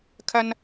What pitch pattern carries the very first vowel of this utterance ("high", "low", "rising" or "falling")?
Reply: high